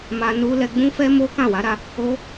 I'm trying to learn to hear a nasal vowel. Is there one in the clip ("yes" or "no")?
yes